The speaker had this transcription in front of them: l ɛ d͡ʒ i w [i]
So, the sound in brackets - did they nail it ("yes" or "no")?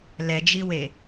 no